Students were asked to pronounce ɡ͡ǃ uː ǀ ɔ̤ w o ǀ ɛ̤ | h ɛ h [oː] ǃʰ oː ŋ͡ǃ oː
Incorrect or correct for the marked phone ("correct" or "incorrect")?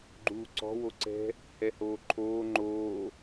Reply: correct